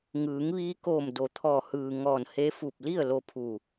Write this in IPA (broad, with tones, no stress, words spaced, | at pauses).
ŋɯː˩˧ŋʋiː˧koː˧˩m do˩˧t̪ʰɔː˧˩ hɯː˩ ŋɔː˧˩nhe˧˥ fu˧˩p̚li˥˨ə̯ lo˧pʰu˧˩